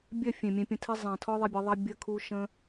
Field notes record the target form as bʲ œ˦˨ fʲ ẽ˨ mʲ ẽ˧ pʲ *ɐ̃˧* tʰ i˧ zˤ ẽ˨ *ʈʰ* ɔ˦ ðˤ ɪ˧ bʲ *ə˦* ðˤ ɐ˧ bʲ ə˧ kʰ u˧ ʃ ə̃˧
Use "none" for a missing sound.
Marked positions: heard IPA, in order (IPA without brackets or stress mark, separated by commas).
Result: ə̃˧, tʰ, ə˨˦